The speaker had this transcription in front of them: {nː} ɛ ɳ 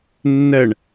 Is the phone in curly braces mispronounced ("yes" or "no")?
no